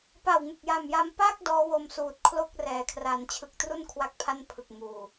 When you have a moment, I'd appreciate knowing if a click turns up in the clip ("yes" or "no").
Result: no